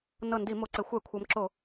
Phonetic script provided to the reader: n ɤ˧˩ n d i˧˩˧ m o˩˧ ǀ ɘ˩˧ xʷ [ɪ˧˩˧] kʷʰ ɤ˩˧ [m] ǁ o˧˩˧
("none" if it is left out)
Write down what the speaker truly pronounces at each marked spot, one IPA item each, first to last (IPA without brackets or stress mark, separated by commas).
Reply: ɛ˧˩˧, m